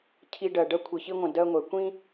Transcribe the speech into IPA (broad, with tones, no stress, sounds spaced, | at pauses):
cʰ i˧ ɖ ɜ˨ ɖ ɜ˧ kʷʰ i˨ ç i˧ ŋʷ ə̃˨ d ɜ˧ ŋʷ ɛ˨ kʷ ĩ˦